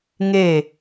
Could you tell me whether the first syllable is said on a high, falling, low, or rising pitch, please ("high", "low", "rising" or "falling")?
falling